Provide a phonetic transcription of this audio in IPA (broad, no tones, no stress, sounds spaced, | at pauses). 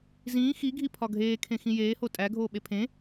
z ĩː x i ɡʱ i pʰ ɒ ɡʱ eː kʰ ẽ x ĩ j eː h o tʼ æ ɡʱ oː ɓ e pʰ ẽ